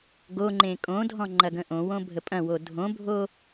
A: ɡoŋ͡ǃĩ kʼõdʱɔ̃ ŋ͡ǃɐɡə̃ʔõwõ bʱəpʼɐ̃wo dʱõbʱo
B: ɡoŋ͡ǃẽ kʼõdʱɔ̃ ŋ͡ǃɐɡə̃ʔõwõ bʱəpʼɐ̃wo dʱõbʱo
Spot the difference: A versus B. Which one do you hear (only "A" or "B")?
B